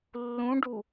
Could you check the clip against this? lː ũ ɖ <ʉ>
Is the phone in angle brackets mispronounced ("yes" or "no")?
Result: yes